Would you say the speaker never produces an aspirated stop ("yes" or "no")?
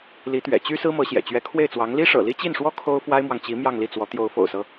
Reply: no